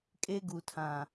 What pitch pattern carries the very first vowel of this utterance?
high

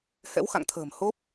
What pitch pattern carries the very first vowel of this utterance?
rising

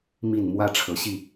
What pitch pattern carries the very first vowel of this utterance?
low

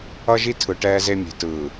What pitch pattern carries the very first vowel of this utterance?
high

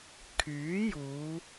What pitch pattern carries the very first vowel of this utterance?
rising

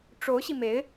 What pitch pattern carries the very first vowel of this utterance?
rising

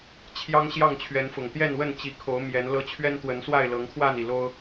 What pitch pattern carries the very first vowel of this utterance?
high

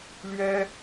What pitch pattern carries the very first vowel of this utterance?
high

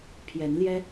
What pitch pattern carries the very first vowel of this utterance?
rising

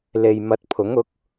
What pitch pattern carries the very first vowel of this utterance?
low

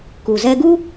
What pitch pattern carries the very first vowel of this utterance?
low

